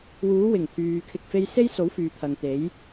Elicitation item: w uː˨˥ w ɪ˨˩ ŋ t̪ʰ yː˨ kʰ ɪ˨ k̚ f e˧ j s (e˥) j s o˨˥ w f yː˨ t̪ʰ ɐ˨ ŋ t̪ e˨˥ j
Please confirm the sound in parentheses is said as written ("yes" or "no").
yes